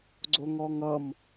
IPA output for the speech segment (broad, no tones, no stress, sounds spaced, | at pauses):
ɡ͡ǀ o ŋ ɔ ŋ ʌ m